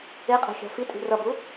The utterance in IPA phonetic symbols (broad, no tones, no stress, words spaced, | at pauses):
eqʼɛ̤ xʲa̤fitʼi̤ rʌbu